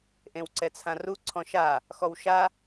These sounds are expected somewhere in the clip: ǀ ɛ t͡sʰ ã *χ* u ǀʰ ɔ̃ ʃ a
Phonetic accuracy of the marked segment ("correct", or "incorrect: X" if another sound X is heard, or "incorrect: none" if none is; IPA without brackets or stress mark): incorrect: r